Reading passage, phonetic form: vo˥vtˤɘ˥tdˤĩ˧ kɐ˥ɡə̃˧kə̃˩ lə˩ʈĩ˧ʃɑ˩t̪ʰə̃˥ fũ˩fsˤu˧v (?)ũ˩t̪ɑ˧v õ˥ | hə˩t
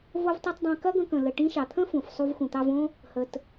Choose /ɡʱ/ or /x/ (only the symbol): x